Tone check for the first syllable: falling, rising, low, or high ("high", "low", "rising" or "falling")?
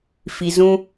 low